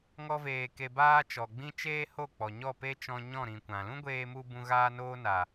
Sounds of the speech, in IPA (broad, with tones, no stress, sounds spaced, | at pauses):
ŋ ɔ˦ v eː˧ k e˧ b aː˦ t͡ʃ ɔ˨ ɡ͡b ĩ˦ t͡ʃ eː˦ h o˦˨ k͡p ɔ˨ ɲ ɔ˦˨ p e˦ t͡ʃ ɔ̃˧ ɲ ɔ̃˦˨ ɾ ĩ˨ kʷ ã˨ l ũ˦ ɡʷ eː˧ m u˧ b ũ˧ ɣ aː˦ n oː˦ n a˨